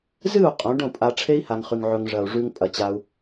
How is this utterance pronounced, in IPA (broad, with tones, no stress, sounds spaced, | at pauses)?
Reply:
z ɨ˦˨ u̯ qʼ õ˨˦ ɖ õ˦˨ pʼ a˧ ʈ͡ʂʰ e˦ i̯ h a˧ ŋ χ ʉ˧ ŋ ʕ ɵ˧ ŋ ʐ ɐ˨ u̯ ʐ ʉ˧ ŋ pʼ ɐ˨ t͡ɕ a˧ u̯